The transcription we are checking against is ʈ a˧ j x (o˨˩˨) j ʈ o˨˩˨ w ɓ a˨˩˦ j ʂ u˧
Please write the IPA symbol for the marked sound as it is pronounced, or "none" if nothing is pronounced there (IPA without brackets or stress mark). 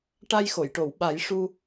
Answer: o˨˩˨